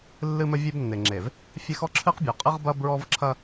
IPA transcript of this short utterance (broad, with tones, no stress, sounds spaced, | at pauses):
lː ɨ˦ m ɘ˦ vʲ e˦ b nː e˨ ŋ͡ǁ e˨ v | fʲ ɛ˦ x ɔ˦ ǁʰ ɨ˦ q bʲ ɔ˨ qʼ ɨ˦ ʁ b ɐ˦ b ɹ ɔ˦ v ǁʰ ɐ˦